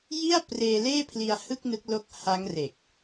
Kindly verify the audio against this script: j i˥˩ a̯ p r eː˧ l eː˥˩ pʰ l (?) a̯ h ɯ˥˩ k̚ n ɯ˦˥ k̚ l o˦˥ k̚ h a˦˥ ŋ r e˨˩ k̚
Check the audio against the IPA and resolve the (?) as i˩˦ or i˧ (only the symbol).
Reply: i˧